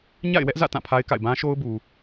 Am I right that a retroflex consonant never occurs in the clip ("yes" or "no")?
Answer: yes